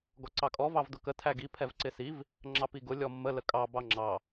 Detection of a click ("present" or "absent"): present